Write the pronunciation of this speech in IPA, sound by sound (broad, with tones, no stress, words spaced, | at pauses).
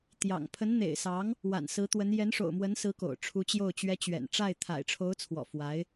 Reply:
t̪jɑ̰˨˩ŋ pʰə˧˥nn̪ḛ˨˩ɪ̯sɑ˧˥ŋ | wa̰˨˩nsɹ̩˧˥t̪wə˧˥n jɛ˧˥nʂo̰˨˩ʊ̯mwə˧˥nsɹ̩˧˥ ko̰˨˩ʊ̯ʈ͡ʂʰu˧˥t͡ɕjo˥˩ʊ̯t͡ɕɥɛ˥ t͡ɕɥɛ̰˨˩nʈ͡ʂa˥˩ɪ̯ t̪ʰa̰˨˩ɪ̯ʈ͡ʂʰo˧˥ʊ̯t͡sʰwɔ̰˨˩ fwa˧˥ɪ̯